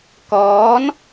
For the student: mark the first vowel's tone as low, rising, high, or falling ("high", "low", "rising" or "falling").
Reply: rising